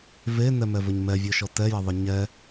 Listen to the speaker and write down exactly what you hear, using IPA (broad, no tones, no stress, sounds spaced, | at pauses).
v e n ɛ m ɛ v ɘ ɲ m ɛ vʲ ɔ ʃ ɔ t ɛ j ɐ ðˤ ɘ ɲ ɛ